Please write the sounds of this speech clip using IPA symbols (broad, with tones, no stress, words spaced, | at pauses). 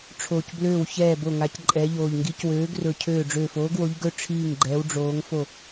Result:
ʈ͡ʂʰoː˧˩cbløː˥˩w çɛː˥˩bo˥˩ ŋa˨˥cǃʼɛː˨˥ʎoː˧˩ʎ ŋɡi˨˥cwøː˨˥ɡrɵ˧˩ cʰøː˥˩ ɖ͡ʐøː˧˩foː˨˥ɡwo˨˥ʎɡɵ˥˩ ʈ͡ʂʰiː˥˩ŋ ɡ͡ǃɛː˨˥wɖ͡ʐoː˨˥ŋfo˥˩